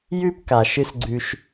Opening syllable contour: high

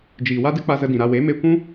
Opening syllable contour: low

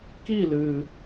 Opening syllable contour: falling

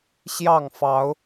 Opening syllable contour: falling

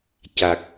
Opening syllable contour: low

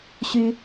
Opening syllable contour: high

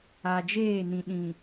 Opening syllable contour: low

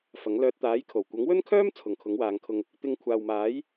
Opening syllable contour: rising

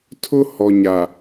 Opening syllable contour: high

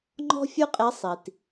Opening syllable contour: high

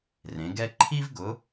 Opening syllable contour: rising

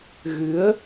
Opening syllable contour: rising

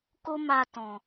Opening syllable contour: high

